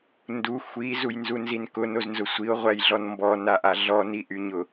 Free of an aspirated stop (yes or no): yes